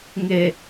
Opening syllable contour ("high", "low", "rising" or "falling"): low